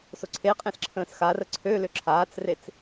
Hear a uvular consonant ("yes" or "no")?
yes